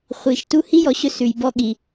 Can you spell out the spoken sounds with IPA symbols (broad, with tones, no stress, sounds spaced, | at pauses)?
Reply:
χʷ i˩ ʃ t u˦ h i˥ j ɔ˨ ɕ ɵ˦ s ʉ˩ j b ɔ˦ ɠ i˩